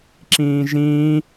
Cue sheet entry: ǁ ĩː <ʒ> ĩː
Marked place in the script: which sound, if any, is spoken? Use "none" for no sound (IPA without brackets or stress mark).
ʒ